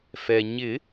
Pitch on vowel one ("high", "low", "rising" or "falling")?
low